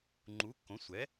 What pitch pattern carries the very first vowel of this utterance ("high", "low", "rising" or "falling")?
rising